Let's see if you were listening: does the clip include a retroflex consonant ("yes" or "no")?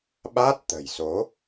no